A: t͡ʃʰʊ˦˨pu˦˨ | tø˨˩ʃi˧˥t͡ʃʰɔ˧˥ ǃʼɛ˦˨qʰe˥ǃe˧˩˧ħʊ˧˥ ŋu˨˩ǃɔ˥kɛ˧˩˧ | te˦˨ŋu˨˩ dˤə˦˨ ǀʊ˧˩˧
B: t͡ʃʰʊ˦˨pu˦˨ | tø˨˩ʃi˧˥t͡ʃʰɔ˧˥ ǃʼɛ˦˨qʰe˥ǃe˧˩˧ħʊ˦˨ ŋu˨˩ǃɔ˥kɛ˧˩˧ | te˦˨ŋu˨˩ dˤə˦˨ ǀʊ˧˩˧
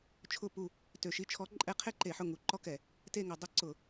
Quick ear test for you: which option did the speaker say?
B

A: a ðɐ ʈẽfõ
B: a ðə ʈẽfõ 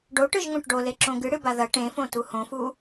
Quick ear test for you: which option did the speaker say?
A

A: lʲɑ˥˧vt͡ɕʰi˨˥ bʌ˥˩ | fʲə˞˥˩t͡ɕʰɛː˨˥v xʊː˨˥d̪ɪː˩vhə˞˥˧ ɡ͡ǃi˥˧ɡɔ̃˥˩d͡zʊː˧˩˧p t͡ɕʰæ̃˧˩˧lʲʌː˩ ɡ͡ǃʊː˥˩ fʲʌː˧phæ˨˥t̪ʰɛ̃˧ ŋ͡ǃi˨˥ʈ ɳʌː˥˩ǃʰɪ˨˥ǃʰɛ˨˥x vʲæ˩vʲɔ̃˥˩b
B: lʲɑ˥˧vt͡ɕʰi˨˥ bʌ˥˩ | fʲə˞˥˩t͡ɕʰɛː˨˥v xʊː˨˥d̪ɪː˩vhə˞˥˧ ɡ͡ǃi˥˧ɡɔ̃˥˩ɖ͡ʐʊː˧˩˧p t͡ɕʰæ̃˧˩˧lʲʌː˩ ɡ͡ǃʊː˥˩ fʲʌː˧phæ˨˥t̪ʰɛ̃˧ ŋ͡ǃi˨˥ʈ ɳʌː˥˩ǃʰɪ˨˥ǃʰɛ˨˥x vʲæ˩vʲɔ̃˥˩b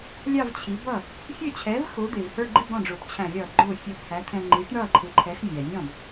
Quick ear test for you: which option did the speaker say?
B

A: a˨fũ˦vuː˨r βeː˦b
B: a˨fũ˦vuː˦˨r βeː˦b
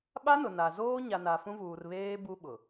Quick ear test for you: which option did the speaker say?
A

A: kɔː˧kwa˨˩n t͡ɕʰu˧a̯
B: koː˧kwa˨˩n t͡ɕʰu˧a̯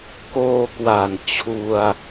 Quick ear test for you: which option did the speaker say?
B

